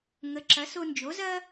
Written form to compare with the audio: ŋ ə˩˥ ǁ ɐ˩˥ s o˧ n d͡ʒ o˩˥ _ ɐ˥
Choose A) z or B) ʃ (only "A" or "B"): A